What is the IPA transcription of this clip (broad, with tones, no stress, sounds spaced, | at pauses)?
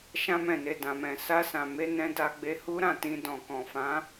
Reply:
ʃ ã˧ m ɛ̃˨ n e˨ d ã˨ m ɛ̃˨ s a˧ s ã˨ m e˧ n ɛ̃˧ d a˧ ɡ͡b e˧ h u˦ ɾ ã˦˨ t ĩ˧ d ɔ̃˨ k ɔ̃˨ f ã˨˦